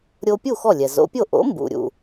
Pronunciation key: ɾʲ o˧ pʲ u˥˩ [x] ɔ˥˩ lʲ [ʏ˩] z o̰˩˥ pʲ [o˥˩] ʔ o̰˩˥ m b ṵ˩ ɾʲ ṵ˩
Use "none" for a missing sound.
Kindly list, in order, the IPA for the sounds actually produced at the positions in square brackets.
x, ɛ˩, o˥˩

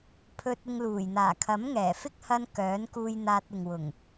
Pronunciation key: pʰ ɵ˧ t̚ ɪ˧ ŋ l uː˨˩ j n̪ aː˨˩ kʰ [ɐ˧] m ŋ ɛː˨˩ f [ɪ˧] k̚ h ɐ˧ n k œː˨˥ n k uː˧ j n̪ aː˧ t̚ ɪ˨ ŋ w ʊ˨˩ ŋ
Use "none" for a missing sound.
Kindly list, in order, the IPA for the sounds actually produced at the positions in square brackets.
ɐ˨˥, ɪ˥

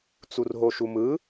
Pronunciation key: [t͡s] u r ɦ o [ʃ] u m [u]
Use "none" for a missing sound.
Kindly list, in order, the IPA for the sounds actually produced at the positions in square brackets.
t͡s, ʃ, ɯ

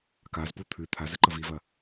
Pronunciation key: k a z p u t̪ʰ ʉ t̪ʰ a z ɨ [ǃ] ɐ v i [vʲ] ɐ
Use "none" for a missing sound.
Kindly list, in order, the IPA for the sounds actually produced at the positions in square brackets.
ǃ, v

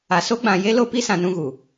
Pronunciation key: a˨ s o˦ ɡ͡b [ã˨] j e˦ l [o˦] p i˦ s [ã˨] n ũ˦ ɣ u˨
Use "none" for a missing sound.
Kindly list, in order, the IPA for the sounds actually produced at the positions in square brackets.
ã˨, o˦, ã˨

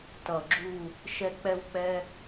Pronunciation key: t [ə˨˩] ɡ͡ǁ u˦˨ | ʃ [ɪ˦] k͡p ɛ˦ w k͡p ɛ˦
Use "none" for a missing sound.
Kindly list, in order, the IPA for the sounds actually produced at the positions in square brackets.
ʌ˨˩, ɛ˦

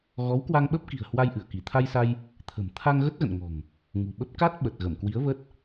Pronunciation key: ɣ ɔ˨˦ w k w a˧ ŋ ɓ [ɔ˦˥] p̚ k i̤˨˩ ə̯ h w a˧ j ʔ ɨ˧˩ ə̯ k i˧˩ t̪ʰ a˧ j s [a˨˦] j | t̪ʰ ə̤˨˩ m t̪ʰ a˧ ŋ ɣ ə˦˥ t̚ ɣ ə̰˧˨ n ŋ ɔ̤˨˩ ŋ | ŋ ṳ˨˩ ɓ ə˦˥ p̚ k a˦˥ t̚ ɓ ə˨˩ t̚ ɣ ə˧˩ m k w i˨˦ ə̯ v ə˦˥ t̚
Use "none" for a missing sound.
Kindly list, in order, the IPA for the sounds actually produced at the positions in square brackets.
ə˦˥, a˧

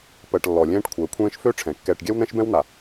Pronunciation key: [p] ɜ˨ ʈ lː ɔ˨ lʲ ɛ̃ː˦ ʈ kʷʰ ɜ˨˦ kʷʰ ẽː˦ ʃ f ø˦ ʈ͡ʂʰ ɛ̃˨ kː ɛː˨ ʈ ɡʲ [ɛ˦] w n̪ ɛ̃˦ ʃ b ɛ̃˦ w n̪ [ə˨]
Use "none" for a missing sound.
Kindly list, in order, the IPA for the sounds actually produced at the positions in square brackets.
p, ɛ˦, a˨

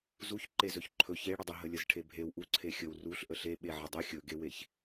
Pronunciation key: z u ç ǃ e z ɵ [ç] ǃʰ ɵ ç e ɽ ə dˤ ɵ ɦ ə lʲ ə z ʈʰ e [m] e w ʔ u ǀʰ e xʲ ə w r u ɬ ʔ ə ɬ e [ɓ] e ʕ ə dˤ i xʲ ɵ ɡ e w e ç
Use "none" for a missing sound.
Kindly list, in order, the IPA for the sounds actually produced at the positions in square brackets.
ç, bʱ, ɓ

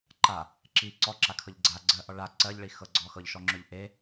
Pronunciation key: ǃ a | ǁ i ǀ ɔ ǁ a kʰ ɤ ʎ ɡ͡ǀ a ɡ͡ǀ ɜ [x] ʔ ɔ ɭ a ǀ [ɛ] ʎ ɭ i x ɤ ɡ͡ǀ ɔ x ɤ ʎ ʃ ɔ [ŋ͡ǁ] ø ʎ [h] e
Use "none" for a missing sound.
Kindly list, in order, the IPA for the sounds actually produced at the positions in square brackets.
none, ɜ, ŋ͡ǁ, ʔ

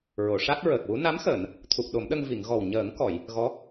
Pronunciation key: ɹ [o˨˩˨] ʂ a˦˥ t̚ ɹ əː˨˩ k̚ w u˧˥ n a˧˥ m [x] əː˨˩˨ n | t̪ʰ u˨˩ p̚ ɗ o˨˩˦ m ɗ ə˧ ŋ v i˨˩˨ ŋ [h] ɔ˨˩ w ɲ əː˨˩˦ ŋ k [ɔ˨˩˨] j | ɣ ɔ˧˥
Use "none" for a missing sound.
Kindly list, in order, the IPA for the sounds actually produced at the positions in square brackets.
o˨˩˨, x, ɣ, ɔ˨˩˨

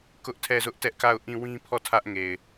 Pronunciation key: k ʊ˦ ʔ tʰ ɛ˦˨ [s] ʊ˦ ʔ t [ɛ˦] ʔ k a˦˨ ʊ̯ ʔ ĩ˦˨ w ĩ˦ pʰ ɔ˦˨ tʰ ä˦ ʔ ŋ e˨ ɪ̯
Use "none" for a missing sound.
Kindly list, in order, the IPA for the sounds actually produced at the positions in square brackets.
z, ɛ˦

